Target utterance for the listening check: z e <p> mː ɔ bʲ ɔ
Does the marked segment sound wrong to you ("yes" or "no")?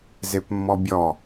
no